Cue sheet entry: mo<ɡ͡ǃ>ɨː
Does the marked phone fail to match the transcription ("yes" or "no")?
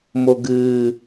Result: yes